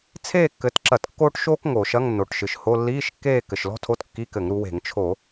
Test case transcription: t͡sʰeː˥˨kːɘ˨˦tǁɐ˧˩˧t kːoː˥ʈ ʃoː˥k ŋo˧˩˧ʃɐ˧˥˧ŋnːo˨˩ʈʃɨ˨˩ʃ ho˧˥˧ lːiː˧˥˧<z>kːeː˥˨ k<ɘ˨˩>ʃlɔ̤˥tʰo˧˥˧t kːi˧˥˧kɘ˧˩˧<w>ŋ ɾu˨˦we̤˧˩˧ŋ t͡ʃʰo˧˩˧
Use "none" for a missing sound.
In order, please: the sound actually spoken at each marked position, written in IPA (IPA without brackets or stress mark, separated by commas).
ʃ, ɘ˨˩, none